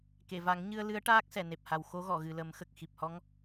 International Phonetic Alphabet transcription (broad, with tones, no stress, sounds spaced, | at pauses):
k e˨˩˨ v a˨˩˦ ŋ ɲ ɨ˧ ə̯ l ɨ˧˥ ə̯ ʈ aː˦˥ k̚ s ɛ˨˩˨ n e˨˩ p̚ h a˨˩ w x o˧˥ ɣ ɔ˨˩˨ ɣ ɨ˨˩ l ə˨˩˦ m x ə˨˩ k̚ x i˨˩ p̚ h ɔ˧˥ ŋ